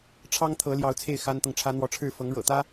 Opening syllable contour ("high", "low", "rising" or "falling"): high